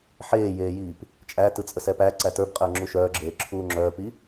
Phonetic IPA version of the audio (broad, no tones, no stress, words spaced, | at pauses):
ħeːjeːjiːp | t͡ʃʼæ tɯt͡sʼəsɛpæ ǀætə˞bqʼəː ŋ͡ǁuʃœːɡ͡ǁeː ǁʰuːŋ͡ǁœːpi